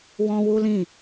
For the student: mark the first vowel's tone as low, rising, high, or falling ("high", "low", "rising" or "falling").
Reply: high